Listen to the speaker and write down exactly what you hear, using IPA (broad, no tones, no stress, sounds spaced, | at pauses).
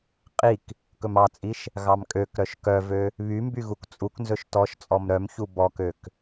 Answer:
qʼ i k | k ɵ m ɑ t͡sʼ i ʃ | ɣ ɑ m kʼ ø k ɾ œ ʃ k œ v ø | β y m b y ɣ u k t͡sʼ u k n z ɵ ʃ t ɔ ʃ t͡sʼ ɔ m ɾ œ m ç u b ɔ k ø k